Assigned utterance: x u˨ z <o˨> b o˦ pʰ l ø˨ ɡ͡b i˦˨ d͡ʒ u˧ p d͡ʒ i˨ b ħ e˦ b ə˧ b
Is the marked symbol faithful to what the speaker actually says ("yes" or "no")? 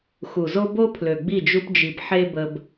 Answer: no